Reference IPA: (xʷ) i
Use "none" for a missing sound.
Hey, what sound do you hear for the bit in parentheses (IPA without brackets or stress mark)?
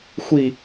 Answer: xʷ